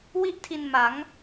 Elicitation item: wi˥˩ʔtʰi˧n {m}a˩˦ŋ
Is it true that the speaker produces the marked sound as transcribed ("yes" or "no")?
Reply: yes